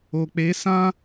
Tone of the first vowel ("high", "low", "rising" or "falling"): low